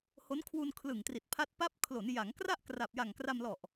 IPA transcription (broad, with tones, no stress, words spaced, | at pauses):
ho˦˥nkʰwu˧nkʰlɯ˨˩ŋ tri˨˩t̚ pʰa˦˥t̚ pa˦˥p̚kʰlo˩˦n ja˩˦ŋkra˥˩ʔ kra˨˩p̚ja˨˩ŋ kra˧mlɔ˨˩ʔ